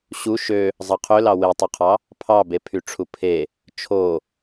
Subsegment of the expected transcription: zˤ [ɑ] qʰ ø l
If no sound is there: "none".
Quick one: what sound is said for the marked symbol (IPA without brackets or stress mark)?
ɑ